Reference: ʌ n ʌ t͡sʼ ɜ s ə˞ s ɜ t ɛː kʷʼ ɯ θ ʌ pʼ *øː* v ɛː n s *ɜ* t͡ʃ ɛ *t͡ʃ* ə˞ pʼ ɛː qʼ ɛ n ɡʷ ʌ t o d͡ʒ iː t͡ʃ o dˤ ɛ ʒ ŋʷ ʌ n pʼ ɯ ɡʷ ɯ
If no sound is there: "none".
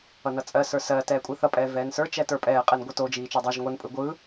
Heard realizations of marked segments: ɛː, ə˞, t

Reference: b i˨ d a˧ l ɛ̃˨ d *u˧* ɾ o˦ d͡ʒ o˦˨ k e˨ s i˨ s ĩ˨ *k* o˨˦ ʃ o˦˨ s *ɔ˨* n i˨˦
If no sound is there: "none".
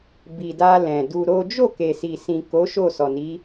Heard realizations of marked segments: u˧, k, ɔ˨

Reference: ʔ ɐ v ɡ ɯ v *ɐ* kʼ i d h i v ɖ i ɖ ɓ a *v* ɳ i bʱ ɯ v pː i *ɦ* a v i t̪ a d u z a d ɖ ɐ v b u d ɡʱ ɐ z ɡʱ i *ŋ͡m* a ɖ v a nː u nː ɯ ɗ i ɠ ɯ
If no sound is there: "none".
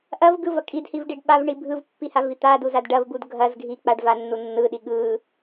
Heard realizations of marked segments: ɐ, v, h, k͡p

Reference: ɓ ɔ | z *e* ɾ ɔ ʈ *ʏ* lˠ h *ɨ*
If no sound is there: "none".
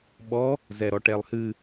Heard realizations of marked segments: ɛ, ɛ, ɨ

